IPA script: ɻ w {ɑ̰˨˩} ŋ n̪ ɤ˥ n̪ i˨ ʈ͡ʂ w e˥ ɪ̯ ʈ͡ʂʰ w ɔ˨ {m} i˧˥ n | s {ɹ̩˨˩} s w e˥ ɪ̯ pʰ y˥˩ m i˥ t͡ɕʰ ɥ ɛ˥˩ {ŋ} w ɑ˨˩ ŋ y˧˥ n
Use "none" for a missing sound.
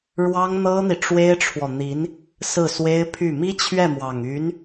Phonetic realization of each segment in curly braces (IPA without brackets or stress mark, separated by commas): ɑ˥, n̪, ɹ̩˥˩, m